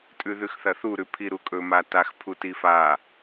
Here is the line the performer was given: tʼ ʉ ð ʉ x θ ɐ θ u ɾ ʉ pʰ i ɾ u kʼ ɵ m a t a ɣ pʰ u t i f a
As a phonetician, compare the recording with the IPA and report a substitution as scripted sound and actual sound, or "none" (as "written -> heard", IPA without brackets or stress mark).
ɣ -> x